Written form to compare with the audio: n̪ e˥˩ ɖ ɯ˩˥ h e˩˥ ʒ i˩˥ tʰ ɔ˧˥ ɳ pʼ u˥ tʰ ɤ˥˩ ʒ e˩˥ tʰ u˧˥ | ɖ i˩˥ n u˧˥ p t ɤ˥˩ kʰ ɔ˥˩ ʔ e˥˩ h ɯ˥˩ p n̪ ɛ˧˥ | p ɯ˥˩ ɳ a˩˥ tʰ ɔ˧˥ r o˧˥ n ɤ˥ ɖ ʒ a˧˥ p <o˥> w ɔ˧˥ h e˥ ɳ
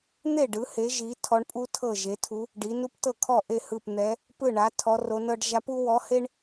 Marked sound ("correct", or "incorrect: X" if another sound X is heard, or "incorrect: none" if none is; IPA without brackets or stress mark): incorrect: u˥